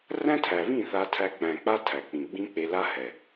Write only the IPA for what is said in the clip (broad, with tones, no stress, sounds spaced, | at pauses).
r æ̃˦ tʰ æ˨ β ĩ˦˨ θ a˧ tʰ æ˧ k͡p æ̃˨ k͡p a˦ tʰ æ˨ k͡p ĩ˨ ɡ͡b ĩ˦ k͡p e˧ l a˦ h ɛ˨